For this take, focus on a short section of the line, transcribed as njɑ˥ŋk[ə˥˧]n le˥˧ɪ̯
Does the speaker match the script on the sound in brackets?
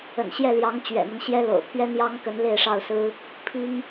no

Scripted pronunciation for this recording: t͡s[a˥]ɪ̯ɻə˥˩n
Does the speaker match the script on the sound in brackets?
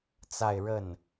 no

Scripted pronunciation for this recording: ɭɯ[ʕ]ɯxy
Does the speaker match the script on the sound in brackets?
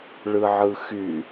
yes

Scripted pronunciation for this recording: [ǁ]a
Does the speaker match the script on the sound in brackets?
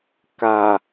no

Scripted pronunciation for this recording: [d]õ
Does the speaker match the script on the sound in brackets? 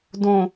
yes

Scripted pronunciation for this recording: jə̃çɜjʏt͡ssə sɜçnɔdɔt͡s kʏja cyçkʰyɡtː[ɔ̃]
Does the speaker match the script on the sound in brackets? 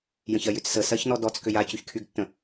no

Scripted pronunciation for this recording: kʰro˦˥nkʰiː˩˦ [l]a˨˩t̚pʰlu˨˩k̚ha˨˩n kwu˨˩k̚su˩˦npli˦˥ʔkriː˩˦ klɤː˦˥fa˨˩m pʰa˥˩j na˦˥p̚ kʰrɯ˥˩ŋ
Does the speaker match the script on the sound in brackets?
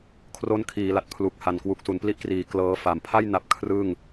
yes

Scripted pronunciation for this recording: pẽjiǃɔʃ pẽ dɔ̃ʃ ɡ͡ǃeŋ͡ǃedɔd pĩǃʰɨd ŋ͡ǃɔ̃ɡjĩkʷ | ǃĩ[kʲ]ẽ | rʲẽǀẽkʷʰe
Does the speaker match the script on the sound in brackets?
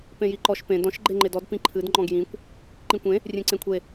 no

